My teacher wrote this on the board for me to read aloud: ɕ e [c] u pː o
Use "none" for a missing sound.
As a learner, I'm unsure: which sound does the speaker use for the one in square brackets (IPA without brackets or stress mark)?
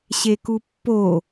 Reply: k